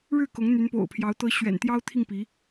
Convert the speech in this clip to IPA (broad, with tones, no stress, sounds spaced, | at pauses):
ɻ ɻ̩˥˩ k ʊ˧˥ ŋ n̪ y˧˥ n p o̰˨˩ ʊ̯ pʰ j ɑ˧˥ ʊ̯ t̪ ɤ˧˥ ɕ ɥ ɛ̰˨˩ n t̪ j ɑ˥ ʊ̯ t̪ʰ i˥˩ ŋ p i˧˥